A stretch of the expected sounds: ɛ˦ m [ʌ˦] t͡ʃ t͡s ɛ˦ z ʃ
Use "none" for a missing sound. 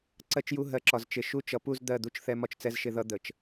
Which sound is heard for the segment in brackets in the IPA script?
ɒ˦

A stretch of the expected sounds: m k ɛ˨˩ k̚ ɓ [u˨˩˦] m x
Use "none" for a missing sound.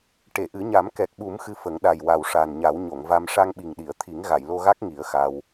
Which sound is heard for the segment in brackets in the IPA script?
u˨˩˦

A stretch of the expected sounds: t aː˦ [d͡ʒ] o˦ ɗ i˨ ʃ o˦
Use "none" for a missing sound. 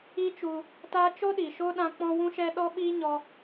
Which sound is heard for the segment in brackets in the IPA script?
t͡ʃ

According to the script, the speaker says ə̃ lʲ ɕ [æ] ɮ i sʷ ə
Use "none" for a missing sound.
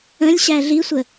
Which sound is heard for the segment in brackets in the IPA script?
æ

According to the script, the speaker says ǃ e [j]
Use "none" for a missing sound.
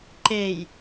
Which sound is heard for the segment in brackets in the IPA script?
j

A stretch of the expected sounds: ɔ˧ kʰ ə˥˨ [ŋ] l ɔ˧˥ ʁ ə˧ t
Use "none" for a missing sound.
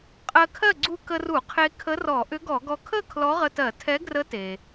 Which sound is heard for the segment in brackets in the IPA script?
kʰ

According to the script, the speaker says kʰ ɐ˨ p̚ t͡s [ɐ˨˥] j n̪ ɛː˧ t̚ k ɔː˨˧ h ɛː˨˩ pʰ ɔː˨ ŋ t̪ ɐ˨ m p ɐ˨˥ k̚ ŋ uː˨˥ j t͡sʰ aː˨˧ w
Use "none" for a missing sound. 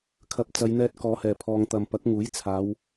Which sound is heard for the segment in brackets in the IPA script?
ɐ˨˧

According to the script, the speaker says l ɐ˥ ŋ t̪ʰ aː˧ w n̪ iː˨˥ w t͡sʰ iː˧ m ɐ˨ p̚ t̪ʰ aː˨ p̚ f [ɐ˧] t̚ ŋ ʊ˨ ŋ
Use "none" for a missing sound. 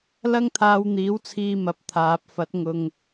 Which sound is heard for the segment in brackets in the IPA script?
ɐ˨˥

